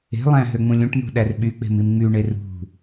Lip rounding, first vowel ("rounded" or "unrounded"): unrounded